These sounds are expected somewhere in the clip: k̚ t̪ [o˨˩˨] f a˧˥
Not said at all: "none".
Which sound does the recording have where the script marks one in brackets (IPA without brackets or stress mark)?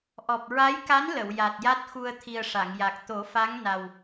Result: o˨˩˦